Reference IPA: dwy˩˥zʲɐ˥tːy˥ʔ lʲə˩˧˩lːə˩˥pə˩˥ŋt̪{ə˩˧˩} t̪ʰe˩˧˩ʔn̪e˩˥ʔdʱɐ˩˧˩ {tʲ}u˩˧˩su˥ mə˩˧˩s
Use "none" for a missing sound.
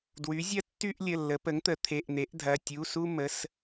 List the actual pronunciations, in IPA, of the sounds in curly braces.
ə˩˥, tʲ

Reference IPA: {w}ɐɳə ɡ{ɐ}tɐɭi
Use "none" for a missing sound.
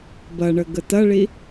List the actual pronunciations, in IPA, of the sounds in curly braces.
b, ə

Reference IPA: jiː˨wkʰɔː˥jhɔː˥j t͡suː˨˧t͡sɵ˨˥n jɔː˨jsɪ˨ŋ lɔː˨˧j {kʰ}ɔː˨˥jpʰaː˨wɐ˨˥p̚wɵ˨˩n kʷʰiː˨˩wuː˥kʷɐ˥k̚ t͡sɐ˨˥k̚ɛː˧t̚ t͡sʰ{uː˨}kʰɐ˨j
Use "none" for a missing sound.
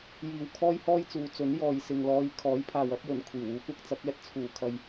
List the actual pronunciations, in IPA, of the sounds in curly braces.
kʰ, uː˨˩

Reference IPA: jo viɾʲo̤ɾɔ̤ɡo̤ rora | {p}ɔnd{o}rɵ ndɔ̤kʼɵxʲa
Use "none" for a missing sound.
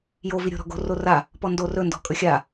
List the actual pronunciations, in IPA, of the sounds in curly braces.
p, o

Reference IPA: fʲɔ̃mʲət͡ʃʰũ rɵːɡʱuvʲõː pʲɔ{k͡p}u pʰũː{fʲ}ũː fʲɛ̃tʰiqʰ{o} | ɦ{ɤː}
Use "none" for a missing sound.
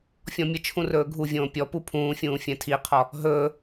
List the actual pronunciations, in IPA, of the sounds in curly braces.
p, fʲ, ɔ, ɵː

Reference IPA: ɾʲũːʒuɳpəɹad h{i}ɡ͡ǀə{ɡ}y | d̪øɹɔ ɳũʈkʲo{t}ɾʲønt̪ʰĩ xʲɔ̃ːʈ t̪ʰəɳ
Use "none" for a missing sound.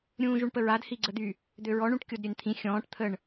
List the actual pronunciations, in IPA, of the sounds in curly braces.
i, d̪, d

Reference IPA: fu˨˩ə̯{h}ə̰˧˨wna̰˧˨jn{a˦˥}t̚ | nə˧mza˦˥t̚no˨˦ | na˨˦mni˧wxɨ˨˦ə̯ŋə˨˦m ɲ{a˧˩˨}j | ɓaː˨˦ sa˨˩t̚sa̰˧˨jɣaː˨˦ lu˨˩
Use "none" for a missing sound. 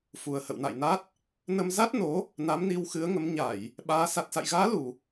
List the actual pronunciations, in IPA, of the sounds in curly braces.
h, a˦˥, a˧˩˨

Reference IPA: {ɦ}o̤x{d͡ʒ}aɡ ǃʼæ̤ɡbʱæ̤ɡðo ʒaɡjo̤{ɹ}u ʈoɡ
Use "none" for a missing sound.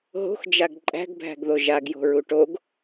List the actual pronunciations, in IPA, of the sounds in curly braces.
ɦ, d͡ʒ, ɹ

